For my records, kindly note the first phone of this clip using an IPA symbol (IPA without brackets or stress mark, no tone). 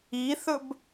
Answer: i